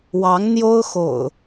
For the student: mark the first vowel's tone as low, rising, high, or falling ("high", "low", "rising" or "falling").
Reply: rising